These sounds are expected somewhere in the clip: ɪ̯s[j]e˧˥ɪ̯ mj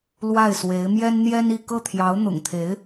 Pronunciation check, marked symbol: incorrect: w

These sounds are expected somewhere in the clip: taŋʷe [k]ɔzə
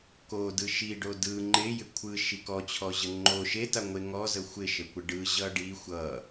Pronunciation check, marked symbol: incorrect: ŋ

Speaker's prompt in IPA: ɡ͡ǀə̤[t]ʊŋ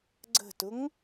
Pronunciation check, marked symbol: correct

